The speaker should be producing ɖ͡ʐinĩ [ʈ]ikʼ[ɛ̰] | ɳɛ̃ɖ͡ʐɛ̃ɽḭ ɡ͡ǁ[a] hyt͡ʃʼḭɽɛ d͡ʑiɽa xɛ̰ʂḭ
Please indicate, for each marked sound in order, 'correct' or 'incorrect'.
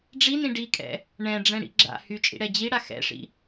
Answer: incorrect: ɖ, correct, incorrect: a̰

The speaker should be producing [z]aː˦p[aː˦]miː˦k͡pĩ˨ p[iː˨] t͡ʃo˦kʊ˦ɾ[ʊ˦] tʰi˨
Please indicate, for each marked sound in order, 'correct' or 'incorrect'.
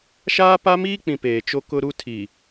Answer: incorrect: ʃ, incorrect: a˦, incorrect: eː˨, incorrect: u˦

